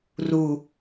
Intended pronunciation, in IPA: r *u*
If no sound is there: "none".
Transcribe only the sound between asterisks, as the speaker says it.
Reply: u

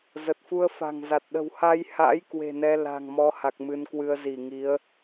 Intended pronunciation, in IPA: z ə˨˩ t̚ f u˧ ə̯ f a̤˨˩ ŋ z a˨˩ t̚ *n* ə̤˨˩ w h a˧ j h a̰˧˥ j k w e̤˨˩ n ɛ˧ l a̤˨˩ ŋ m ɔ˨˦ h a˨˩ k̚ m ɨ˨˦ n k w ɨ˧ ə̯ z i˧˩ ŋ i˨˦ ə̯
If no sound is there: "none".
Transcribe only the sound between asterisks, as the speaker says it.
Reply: ɗ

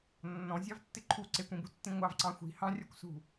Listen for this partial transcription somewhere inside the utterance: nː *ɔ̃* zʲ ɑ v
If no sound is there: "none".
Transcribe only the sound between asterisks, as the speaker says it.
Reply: ɔ̃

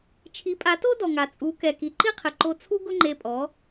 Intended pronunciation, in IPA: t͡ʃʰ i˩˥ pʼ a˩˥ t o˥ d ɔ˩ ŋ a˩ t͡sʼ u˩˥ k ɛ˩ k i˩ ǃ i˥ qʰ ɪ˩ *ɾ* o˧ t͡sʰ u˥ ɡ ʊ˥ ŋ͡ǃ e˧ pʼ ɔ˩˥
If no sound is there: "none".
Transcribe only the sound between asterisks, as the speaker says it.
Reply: ǃ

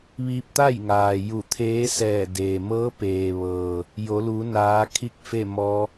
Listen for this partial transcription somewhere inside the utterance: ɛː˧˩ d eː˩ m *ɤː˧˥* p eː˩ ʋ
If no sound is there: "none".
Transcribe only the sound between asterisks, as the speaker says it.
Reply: ɤː˧˥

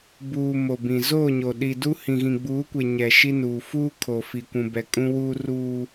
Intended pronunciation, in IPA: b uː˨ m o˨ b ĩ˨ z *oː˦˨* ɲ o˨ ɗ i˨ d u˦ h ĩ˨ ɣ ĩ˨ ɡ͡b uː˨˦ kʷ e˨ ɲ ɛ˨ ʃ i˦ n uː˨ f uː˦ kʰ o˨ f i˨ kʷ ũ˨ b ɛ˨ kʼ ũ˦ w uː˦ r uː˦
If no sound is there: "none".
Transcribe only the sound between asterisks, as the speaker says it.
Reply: oː˦˨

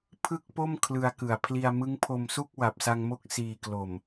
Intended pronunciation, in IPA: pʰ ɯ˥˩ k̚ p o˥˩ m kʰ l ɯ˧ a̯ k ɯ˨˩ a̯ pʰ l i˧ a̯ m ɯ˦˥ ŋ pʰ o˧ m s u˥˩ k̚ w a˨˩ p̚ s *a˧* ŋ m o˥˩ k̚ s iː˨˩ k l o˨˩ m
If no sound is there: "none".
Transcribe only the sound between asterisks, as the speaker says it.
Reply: a˧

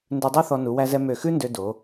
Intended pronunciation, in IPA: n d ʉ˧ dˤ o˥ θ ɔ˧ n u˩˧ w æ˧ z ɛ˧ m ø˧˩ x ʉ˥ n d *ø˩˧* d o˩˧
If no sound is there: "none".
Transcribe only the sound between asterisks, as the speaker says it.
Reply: ø˧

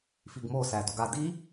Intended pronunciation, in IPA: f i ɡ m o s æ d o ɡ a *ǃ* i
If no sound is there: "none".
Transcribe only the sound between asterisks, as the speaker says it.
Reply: d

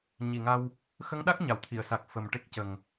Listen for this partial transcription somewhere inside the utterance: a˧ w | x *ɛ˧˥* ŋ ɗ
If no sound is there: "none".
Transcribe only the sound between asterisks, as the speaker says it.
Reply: ə˧˥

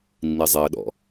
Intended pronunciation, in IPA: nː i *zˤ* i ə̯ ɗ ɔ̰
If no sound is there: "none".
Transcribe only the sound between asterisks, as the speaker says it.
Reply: zˤ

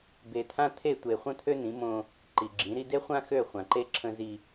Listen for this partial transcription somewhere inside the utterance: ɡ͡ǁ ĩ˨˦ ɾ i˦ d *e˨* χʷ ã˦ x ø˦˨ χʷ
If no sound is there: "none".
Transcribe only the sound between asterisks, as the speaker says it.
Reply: e˦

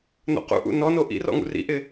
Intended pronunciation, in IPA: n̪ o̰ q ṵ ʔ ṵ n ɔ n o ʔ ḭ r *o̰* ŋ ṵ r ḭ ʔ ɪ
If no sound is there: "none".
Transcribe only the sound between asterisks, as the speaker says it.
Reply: ɔ̰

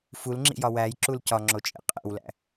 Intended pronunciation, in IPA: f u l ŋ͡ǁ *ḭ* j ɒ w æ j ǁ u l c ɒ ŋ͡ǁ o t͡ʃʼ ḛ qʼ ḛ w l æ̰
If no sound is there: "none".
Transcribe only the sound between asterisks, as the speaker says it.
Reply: ḭ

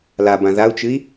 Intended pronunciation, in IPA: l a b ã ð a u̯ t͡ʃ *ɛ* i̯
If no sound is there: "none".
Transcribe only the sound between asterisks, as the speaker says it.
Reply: ɨ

